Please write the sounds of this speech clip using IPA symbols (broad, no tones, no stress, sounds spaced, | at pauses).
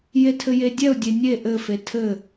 j e tʰ ɘ j e dʲ ɛ ʊ̯ dʲ e nʲ e ʔ ɘ f e tʰ ɘ